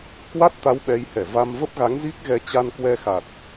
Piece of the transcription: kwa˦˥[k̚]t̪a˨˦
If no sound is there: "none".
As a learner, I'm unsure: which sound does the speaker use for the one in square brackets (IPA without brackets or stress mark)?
t̚